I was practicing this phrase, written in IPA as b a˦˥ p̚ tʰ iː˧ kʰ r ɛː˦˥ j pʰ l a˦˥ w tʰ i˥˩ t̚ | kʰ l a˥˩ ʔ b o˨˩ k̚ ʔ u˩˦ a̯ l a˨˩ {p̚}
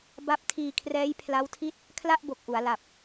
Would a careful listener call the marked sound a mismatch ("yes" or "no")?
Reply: no